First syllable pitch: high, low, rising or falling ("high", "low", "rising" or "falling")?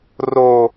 low